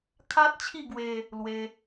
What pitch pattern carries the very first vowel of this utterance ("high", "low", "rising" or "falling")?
high